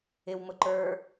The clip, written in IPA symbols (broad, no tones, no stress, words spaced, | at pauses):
ɪwmʊ ǃə˞